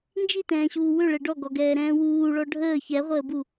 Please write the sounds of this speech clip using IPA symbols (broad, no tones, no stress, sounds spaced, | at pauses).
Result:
n d͡ʒ i t ɛ̃ː ɕ uː w ʏ ɭ ɛ ɖ ɔ ɡ ɔ ɡ ɛː ɾ ɛ̃ː w uː ɭ ɔ ɖʱ əː ç ɛ ʁʷ əː b u